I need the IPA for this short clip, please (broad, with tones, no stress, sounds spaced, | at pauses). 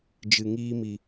d͡ʒ ɨ˨ ŋ iː˧ m i˨